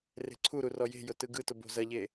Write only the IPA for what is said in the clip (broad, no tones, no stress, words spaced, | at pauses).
re̤ǀʰuɾu rɔje̤jʊ tɯɡɯtʊ bo̤zɐʎe